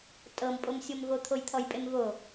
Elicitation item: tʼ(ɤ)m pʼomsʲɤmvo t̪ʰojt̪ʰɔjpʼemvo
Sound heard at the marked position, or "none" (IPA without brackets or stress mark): ɤ